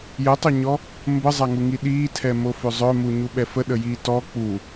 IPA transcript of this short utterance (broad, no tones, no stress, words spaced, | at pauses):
jətˤœɲɔ | mbəzˤaŋuŋi ɗiːtʰɛmofø zˤœmuɲuɓɛ fəɗəjiː tɔ k͡pu